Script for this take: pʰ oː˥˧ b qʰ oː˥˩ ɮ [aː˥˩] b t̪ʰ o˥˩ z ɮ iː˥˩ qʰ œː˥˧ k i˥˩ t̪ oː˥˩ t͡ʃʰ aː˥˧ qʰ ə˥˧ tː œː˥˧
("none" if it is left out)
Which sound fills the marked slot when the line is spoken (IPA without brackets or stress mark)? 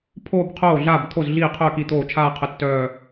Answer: aː˥˩